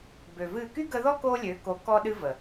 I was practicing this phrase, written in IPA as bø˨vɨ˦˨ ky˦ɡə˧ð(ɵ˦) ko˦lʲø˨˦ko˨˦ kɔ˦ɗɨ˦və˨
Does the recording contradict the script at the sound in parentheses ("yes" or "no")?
yes